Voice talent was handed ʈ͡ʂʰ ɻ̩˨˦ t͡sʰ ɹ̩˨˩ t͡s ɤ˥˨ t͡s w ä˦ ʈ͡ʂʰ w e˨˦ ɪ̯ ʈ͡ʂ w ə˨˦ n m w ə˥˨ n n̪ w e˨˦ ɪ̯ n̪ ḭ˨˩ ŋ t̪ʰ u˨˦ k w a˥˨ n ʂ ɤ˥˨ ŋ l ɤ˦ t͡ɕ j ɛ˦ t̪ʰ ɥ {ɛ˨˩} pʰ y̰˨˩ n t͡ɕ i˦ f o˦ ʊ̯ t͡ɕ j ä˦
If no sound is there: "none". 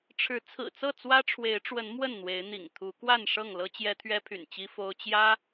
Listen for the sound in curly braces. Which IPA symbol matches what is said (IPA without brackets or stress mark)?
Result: ɛ˦